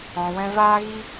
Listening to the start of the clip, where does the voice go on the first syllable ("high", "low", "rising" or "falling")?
low